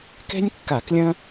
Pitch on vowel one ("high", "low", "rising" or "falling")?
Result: high